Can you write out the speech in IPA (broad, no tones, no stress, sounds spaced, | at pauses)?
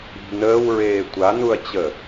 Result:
i̤ n əː w ɹ eː tʷ a n u ɐ̯ t͡ɕ ə